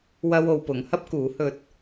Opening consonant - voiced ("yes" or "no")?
yes